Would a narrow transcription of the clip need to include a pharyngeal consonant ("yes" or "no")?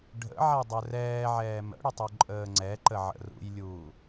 yes